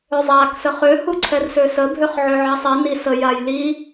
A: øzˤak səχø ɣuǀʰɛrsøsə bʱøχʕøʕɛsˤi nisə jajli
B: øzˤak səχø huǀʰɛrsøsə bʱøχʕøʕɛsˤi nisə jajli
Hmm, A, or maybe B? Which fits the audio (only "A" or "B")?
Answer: B